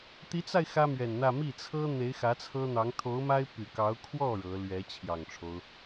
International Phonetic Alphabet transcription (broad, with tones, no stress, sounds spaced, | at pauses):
t̪ i˧˥ t͡s a˧ ɪ̯ x ä˥ m ɥ ɛ˨˩ n n̪ ä˥˧ m i˥˩ t͡sʰ ɤ˥ n̪ e˧˥ ɪ̯ x ä˧˥ t͡sʰ ɤ˥ n̪ ɑ˧˥ ŋ t̪ʰ o˧˥ ʊ̯ m a˥ ɪ̯ p y˨˩ k ɑ˧˥ ʊ̯ kʰ w ɔ˥˩ ɻ ɤ˧˥ l ɥ ɛ˧˥ t͡ɕʰ j ɑ˨˩ ŋ ʈ͡ʂʰ o˦ ʊ̯